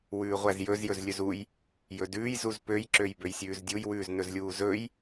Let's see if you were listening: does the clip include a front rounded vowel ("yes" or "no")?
yes